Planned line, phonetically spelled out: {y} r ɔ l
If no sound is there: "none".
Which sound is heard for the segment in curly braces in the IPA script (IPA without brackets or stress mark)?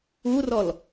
u